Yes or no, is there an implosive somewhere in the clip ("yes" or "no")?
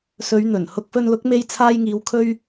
no